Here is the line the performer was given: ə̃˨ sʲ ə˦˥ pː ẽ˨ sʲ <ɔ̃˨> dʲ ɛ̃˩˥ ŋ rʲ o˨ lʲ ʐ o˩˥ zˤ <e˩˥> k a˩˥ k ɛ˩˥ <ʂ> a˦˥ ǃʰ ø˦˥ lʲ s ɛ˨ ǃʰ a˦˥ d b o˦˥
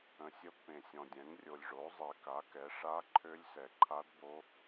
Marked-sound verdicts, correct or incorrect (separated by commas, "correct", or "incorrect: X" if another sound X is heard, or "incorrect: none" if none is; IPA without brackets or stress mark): correct, incorrect: e˨, correct